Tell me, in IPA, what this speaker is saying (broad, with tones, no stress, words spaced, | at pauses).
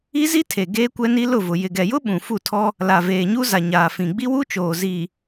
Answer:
i˦zi˦tʰe˨ ɡeː˦kʷɛ˦ni˦ lʊ˦˨vʊ˨ jɪ˨ɡɛ˨jʊ˦ ɓũ˨ fu˦˨tʰɔ˦ | la˨veː˨ɲu˦za˨ ɲaː˨fĩ˨ ɡ͡bi˦wu˦t͡ʃoː˨ zi˨